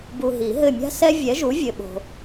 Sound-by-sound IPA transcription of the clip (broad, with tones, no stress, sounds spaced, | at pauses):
b u˨ ɦ i˨˩˦ ɦ ɘ˦˨ mʲ a̤˦ s ɛ˦ vʲ ɛ˨˥ ʒ u˨˥ vʲ ɘ˨ ɓ o̤˨